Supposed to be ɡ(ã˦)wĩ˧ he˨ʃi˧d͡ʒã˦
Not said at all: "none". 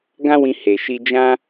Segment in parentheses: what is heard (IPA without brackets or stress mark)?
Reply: ã˦